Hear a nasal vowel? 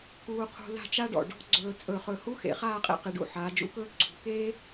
no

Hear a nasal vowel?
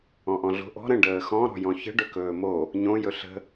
yes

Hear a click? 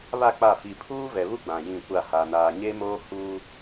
no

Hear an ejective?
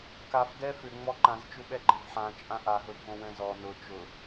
yes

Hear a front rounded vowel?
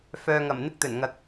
yes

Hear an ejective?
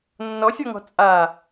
yes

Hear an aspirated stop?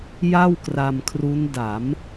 yes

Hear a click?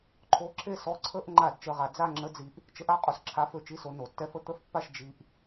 yes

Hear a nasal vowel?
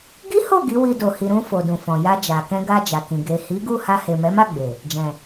yes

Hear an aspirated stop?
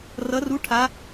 yes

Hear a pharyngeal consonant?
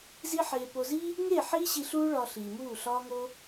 yes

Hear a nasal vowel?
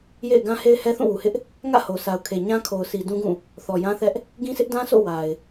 yes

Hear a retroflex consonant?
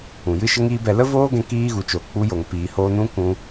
no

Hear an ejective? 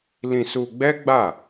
no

